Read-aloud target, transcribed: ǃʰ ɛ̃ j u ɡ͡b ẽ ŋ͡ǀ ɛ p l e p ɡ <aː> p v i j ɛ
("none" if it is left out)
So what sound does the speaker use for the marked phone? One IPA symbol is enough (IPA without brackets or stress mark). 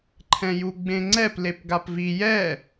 a